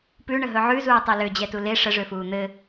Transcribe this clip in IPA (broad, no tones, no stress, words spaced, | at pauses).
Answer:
pʉɳəɦɵ ʕʉzuːtˤe lød͡ʑɛtu le ʂəʐøfuː n̪ɘ